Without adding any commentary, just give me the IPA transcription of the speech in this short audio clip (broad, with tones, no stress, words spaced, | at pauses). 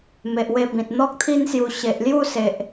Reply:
me˨ʔwe˧ bĩ˨t̚n̪ɔ˦k̚t̪ʰi˦nsju˧ ɕe˨ʔlju˥˧se˨ʔ